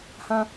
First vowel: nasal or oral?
nasal